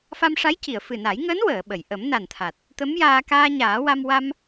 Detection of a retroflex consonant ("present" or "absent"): present